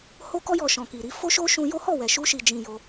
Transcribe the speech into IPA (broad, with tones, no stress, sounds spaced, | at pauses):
h o˧ k ɔ˧ j ɔ˨ ʃ ɔ̃˨ k i˨ ɾ i˧ f o˦ ʃ o˦ ʃ ũ˧ j o˦ h ɔ˦˨ w ɛ˨ ʃ u˧ ʃ i˨ d͡ʒ ĩ˨ j o˧